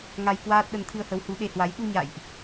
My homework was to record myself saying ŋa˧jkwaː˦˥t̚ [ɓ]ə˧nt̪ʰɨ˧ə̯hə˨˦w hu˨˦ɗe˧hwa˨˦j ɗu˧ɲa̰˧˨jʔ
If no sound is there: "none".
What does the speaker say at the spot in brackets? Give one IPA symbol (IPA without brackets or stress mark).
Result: ɗ